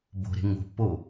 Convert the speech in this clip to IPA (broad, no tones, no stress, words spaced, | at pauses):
bo̤ɾe̤ ŋo̤pːo